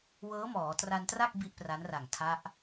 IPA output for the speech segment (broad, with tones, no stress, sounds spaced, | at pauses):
w ɤː˦˥ m ɔː˩˦ t r a˧ n t r a˥˩ k̚ b i˥˩ ʔ p r a˦˥ n r a˨˩ ŋ tʰ a˦˥ ʔ